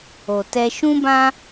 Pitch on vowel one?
low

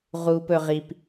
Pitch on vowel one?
high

